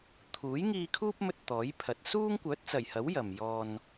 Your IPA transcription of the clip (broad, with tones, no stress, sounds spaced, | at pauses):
t̪ʰ uː˨˥ j ŋ iː˧ kʰ uː˥ p̚ m ɵ˧ t̚ t̪ ɔː˨˥ j pʰ ɐ˨˥ t̚ s uː˥ ŋ kʷ œː˨˥ t̚ t͡s ɐ˨˩ j h ɐ˨˥ w j ɐ˨ m j ɔː˧ n